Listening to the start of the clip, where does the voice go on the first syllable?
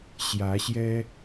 rising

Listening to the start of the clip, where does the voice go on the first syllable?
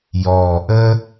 low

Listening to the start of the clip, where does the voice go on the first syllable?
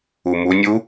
low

